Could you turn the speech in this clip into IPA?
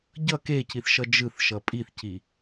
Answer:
ɟʌ keciθʃʌ d͡ʒɯθʃʌ pʼiθci

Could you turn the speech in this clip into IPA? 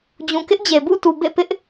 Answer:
d͡ʑũ˨kɪ˦ʔd͡ʑe˨ bṵ˦˨tu˨ bḛ˦˨pɪ˦ʔ

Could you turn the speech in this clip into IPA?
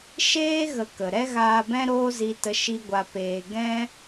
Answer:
ʃeː˦ ɣə˧kə˨ ɾɛ˦ɣaː˧bɛ̃˦ ɾoː˦zi˧tə˧ ʃi˦ɡʷa˧peː˧ ɡɛ̃˦

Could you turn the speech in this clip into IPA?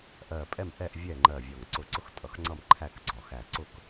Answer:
ʔɜ˧˩pʼɛ˥˨mʔɛ˥˨ʔ vʲɛ˥˨ŋ͡ǃɜ˧˩vʲɒ˧˩ŋ ǀʊ˧˩ǀʊ˥˨x tʼʌ˧˩xŋ͡ǀʌ˥˨m ǃʰæ˥˨k ɡ͡ǀɒ˧˩xæ˧˩ ǀʊ˧˩k

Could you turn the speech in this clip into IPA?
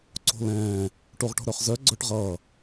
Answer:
ǀo̤lɛ̃ː | ʈoʁʈo̤ɾœχzœ ɡ͡ǀœʈʁʌː

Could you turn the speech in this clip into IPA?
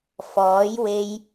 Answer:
fɔː˨˥jwe˧j

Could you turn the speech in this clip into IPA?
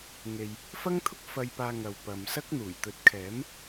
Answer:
ŋe˨j | fɐ˥ŋt̪ʰʊ˥k̚ fɐ˧jpaː˧ ŋɐ˨wpɐ˨msɐ˥k̚ n̪uː˨˩jt̪ɵ˨˥t̚kʰɛː˨˥m

